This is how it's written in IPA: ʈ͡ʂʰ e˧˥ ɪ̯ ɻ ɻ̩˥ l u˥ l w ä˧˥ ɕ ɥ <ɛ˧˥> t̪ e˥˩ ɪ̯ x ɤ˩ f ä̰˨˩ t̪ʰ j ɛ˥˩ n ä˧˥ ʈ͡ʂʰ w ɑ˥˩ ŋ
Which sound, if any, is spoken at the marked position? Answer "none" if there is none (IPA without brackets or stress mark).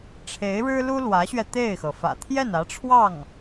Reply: ɛ˧